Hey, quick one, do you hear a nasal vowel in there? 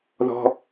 no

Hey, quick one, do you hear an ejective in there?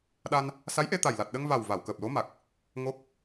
no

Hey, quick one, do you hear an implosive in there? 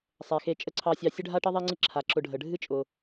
no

